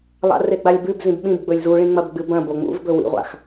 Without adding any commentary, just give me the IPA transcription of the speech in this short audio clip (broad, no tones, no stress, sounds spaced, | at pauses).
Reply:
lˠ a̰ r e ɡ͡b a lʲ b ʉ b z ĩ b ɓ ĩ b ɡ͡b ɵ lʲ z u ɭ ĩ ŋ͡m ɐ b ɡ͡b ɨ b ɐ̃ b o ŋ͡m ṵ v b ɵ w ḭ ʁʷ a̰ x